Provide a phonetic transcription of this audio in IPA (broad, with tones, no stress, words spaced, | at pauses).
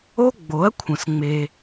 o˦ ɡ͡bo˨˦ɐ̯kʷʰə̃˨s ŋ͡me˧